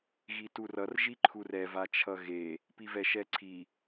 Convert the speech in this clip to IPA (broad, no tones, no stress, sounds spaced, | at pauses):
ɣ i t u r ʌ r ʒ i ǃʰ u r ɛ v a t͡ʃʰ ʌ ɣ e | p i v ɛ ʃ ɛ ǀʰ i